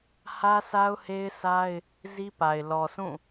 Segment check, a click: absent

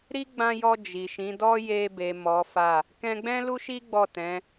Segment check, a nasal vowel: present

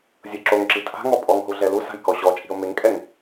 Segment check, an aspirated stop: absent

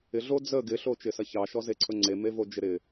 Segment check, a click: present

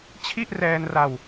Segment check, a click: absent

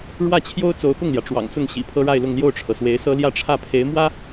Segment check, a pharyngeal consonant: absent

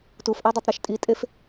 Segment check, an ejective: present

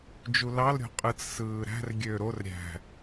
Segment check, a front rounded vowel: present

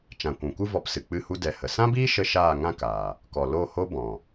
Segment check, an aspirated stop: absent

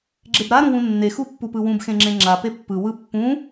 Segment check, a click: present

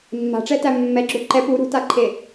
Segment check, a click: present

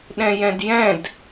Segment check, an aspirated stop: absent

